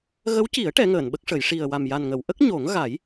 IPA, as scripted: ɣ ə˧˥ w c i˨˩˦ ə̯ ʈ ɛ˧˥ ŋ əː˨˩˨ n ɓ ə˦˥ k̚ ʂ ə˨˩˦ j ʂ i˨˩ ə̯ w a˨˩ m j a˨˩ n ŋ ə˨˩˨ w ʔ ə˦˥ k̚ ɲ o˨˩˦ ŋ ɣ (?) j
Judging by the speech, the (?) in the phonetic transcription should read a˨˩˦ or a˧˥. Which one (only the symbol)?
a˨˩˦